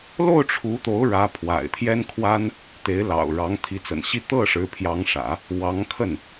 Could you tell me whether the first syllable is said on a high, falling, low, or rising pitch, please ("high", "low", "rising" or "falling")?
falling